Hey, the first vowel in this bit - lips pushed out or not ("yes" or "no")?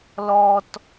yes